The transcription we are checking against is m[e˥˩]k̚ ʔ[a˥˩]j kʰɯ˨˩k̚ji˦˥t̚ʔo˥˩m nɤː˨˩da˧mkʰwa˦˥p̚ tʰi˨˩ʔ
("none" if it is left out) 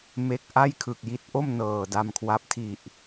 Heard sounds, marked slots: e˥˩, a˥˩

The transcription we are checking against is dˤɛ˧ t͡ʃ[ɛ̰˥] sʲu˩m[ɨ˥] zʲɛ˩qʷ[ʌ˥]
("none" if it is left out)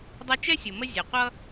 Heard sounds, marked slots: ɛ˥, ə˥, ʌ˥

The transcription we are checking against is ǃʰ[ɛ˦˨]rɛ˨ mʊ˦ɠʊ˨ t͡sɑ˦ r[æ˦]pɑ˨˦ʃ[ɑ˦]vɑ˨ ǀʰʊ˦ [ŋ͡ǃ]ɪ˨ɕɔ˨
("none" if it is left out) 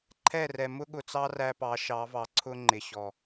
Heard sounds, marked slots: ɛ˦˨, æ˦, ɑ˨˦, ŋ͡ǃ

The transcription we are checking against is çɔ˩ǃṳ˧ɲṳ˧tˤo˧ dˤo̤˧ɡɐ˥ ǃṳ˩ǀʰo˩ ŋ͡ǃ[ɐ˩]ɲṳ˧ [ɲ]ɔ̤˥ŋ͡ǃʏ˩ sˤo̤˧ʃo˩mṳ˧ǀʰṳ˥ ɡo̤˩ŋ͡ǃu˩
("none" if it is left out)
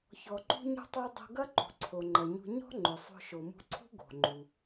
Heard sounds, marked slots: ɐ˩, ɲ

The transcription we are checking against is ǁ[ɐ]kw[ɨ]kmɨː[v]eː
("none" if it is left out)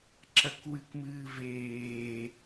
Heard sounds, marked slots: ɐ, ɨ, v

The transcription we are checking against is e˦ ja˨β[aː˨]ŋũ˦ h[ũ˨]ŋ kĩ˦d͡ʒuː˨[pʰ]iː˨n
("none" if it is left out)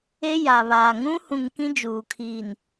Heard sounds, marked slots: aː˨, ũ˦, kʰ

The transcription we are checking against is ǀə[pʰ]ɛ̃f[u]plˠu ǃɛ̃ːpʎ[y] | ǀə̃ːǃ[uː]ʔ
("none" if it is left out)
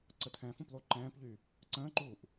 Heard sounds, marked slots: tʰ, ũ, y, uː

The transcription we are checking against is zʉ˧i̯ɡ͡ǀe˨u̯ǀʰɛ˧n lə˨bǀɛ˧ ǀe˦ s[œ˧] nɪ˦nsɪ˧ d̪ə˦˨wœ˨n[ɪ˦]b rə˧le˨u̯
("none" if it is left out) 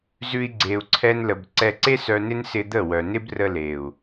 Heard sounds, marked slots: œ˧, ɪ˦

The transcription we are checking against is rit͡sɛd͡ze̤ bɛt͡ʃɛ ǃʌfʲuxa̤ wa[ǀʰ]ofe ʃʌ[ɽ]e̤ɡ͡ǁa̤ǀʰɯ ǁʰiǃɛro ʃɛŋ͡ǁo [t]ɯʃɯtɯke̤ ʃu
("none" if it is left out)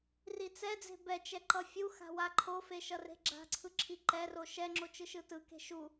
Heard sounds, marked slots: ǃʰ, r, t͡ʃ

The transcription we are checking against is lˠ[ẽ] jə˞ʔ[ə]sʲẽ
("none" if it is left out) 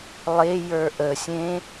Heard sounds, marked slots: e, ə

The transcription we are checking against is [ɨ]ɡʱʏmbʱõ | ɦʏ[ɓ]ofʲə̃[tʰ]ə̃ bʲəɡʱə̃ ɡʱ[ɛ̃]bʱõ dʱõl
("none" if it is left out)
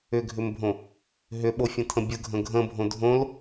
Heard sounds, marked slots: ʏ, ɓ, tʰ, ə̃

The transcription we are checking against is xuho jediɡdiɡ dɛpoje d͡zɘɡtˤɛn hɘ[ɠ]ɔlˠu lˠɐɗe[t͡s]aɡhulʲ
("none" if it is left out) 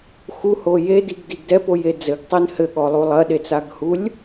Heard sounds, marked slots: ɠ, t͡s

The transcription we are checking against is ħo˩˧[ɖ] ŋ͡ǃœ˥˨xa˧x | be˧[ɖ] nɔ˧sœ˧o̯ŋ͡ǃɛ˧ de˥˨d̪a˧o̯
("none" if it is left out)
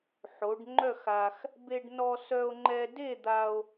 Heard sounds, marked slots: ɖ, ɖ

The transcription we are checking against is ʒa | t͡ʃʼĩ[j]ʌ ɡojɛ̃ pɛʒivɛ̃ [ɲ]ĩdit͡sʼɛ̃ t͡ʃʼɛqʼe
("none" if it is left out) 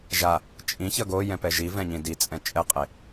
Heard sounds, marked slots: ç, ɲ

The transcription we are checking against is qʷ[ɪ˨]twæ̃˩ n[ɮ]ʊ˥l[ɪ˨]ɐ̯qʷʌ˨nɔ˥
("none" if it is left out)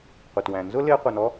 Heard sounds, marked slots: ɪ˩, z, ɪ˦

